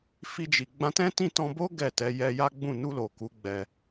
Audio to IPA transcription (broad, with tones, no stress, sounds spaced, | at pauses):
f i˧ d͡ʒ i˨ ɡ͡b ã˧ t ɛ̃˦ t ĩ˦˨ t ɔ̃˧ b o˦ ɡ ɛ˦˨ t ɛ˨˦ j ɛ˧ j a˦ ɡ͡b ũ˦˨ n u˧ l o˨ k u˨˦ ɡ͡b ɛ˧